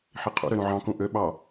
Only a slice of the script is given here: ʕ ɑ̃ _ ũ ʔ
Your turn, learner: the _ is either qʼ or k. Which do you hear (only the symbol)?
k